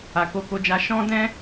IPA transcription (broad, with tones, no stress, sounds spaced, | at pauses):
a˨ k o˧ k o˧ d͡ʒ a˧ ʃ ɔ̃˦ d ɛ̃˦